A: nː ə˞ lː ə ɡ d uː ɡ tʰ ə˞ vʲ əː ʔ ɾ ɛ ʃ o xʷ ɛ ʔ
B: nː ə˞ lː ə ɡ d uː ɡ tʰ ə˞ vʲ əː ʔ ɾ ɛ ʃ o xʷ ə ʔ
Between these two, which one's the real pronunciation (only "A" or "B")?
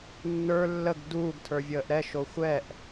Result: A